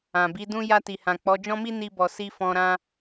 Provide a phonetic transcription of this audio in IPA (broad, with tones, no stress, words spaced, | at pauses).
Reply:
ã˨bi˨˦dũ˦ ja˧ti˨hã˨ k͡pɔ˨˦d͡ʒɔ̃˦mi˦ ni˦bɔ˧ si˧ fɔ̃˧ɾã˦